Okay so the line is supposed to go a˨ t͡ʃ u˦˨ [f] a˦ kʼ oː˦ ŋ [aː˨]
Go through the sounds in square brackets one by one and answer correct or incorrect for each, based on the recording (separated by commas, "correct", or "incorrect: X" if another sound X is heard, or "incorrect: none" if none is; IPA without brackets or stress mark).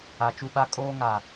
incorrect: ɓ, correct